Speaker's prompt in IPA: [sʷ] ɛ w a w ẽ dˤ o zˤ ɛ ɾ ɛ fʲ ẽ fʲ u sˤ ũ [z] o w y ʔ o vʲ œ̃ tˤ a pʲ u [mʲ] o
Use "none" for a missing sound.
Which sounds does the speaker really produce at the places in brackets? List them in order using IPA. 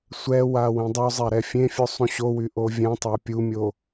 sʷ, ɕ, mʲ

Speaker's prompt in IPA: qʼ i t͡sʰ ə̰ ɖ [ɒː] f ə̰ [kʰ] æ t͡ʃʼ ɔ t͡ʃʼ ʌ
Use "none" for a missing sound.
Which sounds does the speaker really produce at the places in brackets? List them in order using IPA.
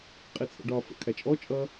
ɒː, kʰ

